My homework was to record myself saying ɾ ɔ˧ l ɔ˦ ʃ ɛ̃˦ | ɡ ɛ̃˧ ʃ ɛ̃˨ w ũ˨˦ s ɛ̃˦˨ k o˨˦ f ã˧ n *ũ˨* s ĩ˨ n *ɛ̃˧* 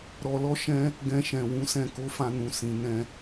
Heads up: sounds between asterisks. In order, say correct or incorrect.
correct, correct

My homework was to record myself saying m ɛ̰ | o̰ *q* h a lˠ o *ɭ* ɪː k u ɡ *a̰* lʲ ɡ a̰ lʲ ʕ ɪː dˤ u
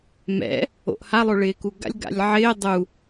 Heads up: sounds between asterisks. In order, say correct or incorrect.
incorrect: ʔ, correct, correct

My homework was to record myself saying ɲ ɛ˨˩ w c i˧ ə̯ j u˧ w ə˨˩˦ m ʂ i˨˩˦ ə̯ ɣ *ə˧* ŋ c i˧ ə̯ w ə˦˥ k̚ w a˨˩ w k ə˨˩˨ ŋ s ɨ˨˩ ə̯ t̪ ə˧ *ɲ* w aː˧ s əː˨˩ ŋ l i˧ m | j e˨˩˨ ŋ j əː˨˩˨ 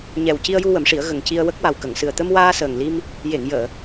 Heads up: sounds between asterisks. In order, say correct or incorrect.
incorrect: ə˨˩, incorrect: m

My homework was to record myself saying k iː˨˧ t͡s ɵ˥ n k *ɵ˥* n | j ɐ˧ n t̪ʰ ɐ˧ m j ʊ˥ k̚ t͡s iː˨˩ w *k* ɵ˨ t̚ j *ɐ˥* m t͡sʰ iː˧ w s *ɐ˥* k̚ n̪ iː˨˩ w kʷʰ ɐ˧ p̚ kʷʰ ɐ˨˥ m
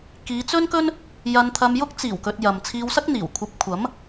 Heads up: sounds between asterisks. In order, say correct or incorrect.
correct, correct, incorrect: ɐ˨, correct

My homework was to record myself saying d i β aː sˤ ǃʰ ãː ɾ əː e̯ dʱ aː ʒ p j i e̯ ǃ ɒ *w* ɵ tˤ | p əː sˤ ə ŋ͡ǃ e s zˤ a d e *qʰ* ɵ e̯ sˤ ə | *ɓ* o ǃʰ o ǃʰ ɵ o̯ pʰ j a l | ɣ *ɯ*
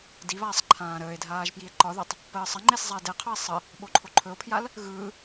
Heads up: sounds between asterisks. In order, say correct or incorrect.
incorrect: ð, correct, correct, correct

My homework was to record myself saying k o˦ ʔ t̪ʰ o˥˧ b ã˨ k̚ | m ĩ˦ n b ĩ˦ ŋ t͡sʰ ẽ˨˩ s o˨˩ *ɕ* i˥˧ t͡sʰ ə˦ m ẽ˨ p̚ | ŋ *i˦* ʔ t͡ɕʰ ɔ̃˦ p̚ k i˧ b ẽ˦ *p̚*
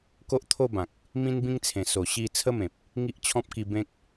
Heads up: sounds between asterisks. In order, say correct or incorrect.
correct, correct, incorrect: k̚

